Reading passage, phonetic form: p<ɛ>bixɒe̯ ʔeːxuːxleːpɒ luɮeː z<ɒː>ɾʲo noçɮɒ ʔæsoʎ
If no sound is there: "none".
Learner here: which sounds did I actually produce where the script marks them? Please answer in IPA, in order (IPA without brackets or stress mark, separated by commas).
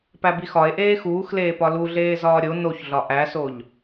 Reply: æ, ɒː